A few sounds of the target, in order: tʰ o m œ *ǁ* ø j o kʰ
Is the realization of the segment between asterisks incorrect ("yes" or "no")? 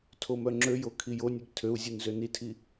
yes